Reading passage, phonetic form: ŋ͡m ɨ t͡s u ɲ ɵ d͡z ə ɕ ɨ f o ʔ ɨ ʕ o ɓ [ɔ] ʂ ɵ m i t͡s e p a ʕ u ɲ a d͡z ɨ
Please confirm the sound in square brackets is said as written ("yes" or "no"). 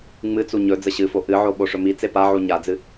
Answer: no